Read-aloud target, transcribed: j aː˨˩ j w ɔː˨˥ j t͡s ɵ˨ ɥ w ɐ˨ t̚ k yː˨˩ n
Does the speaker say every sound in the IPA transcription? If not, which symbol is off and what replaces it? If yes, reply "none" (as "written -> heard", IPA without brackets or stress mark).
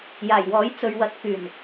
none